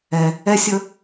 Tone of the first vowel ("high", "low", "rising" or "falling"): low